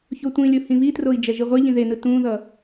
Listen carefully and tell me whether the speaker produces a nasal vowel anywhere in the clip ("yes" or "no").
yes